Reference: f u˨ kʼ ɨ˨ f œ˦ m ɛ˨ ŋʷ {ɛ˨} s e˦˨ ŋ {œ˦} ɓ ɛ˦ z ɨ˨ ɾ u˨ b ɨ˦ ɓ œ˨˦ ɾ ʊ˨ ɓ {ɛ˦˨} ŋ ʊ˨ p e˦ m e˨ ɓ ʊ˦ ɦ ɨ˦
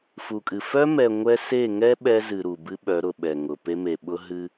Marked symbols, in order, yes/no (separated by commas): no, no, no